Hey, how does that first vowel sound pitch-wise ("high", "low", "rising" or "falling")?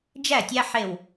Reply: falling